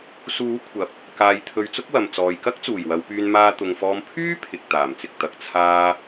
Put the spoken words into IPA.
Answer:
suː˨˥ kʷʰɐ˨p̚ | kaː˨jt̪ʰɵ˨ɥ t͡sʊ˥k̚wɐ˨m t͡sɔː˨jkɐ˥k̚ t͡suː˨˩jwɐ˨˧wpyː˧n maː˧t̪ʊ˨ŋfɔː˧m pʰyː˥ pʰɪ˨k̚ t̪aː˨˩mt͡sɪ˨k̚ t̪ɐ˨k̚ t͡sʰaː˧

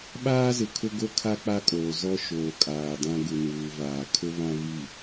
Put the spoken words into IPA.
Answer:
ɓaː˦zɪ˨ kʰʊ˦ɡo˦kʰa˦ k͡pa˦kʼoː˨ zɔ˦ʃoː˨kʼaː˨dã˦ ɡu˨nuː˨vaː˨ kʰʊ˦βã˦vi˦˨

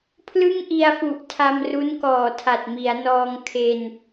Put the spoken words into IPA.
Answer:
pʰlɯ˥˩ŋʔi˧a̯fu˨˩ʔ tʰa˧mru˦˥nkɔː˨˩ tʰa˨˩t̚mi˩˦a̯nɔː˧ŋ kʰe˧n

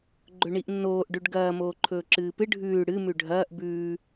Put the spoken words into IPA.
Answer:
ɡ͡ǃɵɳiʔnːoːʔ ɖʉɖɡɐː moːǃʰɵːǁɨːpɨ ɖʱʉː ɽɨ mʉɖʱɐːʔ bʉː

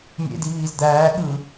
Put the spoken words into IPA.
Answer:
mʲḛdi βiːzd̪æːɠɯː

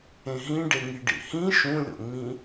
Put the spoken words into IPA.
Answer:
ẽɦĩ ɖeŋiɖḭhĩ ʃũlʲo̰ŋ͡mĩ

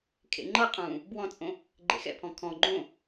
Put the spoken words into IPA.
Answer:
kʰḛŋ͡ǃɤqʼũː | bwɔ̃t͡sʼõ | ɡ͡ǃḛxɛ̰pʰɔ̃ kʰɔ̃ ɡ͡ǃõ

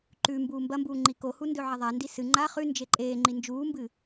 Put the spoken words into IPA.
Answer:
ǃʉ mbuːmbɐmbuː ŋ͡ǃikohu ndɵʕɐðˤandi sɨ ŋ͡ǃa χʉ nd͡ʒeǃʼeːŋ͡ǃi nd͡ʒuːmbɨ

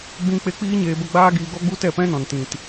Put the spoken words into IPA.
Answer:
ɡ͡bĩ˦k͡pe˦ k͡piː˦ɲeː˧bə˧ ɡ͡baː˦ɡiː˧ɡɔ˦ɡ͡bu˦ tɛ˦˨pɛ̃˦nɔ̃˨n tĩ˨t

